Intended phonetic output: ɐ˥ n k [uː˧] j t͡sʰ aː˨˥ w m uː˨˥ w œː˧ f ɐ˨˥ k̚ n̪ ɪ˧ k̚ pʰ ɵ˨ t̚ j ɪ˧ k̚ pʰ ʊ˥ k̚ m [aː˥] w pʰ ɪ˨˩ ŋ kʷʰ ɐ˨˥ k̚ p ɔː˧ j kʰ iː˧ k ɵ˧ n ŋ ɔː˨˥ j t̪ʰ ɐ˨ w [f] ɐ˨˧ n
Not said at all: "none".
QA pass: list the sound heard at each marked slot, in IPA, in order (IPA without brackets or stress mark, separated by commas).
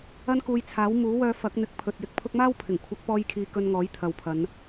uː˧, aː˥, pʰ